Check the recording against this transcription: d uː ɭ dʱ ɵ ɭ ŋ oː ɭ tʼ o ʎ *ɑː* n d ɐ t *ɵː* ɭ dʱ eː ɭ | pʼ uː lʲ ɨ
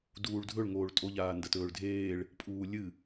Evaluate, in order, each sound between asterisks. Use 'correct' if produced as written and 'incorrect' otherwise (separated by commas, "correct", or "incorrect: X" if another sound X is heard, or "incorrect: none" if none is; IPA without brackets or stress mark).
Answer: incorrect: aː, correct